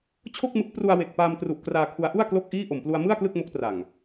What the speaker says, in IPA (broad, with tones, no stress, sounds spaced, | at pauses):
t͡ɕʰ o˥˩ k̚ m ɯ˦˥ k̚ p r u˧ a̯ w e˨˩ k̚ p aː˧ m t r u˨˩ ʔ k r aː˧ kʰ u˦˥ a̯ ʔ u˥˩ a̯ k l o˥˩ k̚ ʔ iː˥˩ ʔ o˨˩ m p l u˧ a̯ m ɯ˥˩ a̯ k l ɯ˥˩ k̚ m o˦˥ k̚ t r a˨˩ ŋ